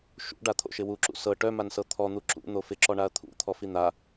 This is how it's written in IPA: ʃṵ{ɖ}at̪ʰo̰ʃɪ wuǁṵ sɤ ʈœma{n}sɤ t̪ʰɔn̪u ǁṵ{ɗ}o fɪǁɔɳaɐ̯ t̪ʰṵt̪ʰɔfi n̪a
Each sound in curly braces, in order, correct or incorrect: correct, correct, incorrect: n̪

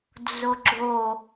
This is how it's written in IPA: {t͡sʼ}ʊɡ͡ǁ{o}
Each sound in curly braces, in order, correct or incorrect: incorrect: d͡z, correct

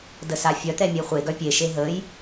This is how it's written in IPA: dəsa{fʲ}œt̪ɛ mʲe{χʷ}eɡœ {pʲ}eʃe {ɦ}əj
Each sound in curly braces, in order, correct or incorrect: correct, correct, correct, correct

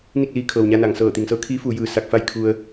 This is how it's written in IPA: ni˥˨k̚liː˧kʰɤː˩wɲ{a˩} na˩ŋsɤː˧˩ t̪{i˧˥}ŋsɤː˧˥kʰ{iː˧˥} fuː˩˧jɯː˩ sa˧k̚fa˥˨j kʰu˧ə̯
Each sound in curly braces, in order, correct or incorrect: incorrect: a˧, incorrect: i˩, correct

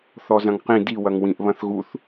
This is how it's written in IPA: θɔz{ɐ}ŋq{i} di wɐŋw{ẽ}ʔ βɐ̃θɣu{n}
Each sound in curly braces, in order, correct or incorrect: incorrect: ɐ̃, incorrect: ĩ, incorrect: ĩ, incorrect: θ

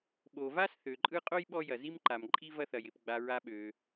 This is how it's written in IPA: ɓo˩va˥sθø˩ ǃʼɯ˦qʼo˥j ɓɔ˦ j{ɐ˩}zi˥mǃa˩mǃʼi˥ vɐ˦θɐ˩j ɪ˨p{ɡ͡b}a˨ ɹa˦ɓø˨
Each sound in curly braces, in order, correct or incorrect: correct, correct

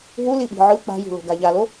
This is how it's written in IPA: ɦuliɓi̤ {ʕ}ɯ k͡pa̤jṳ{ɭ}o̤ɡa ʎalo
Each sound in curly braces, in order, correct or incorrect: correct, incorrect: l

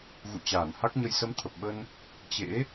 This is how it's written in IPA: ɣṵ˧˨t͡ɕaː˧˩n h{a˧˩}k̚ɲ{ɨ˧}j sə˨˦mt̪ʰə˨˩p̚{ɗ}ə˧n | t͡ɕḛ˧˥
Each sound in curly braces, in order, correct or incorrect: incorrect: a˦˥, incorrect: ə˧, incorrect: ɓ

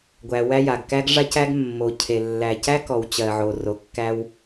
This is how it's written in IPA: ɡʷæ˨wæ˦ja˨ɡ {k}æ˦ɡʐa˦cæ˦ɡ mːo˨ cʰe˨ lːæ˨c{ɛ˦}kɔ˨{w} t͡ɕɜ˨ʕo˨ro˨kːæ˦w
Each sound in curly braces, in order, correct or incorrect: correct, incorrect: æ˦, correct

